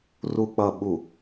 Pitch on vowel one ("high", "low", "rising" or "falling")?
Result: low